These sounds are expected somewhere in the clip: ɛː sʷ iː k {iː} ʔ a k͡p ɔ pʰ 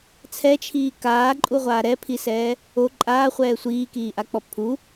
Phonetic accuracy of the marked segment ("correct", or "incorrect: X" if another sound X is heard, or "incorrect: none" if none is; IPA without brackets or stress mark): correct